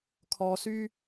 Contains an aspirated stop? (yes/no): yes